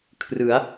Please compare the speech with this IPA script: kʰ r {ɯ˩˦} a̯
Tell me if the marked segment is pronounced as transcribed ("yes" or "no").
yes